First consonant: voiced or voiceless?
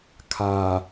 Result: voiceless